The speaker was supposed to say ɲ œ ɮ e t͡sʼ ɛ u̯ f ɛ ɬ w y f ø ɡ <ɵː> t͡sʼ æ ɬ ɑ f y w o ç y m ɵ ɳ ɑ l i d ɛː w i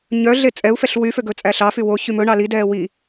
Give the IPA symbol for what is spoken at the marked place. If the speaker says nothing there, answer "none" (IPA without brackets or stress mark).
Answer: ɵ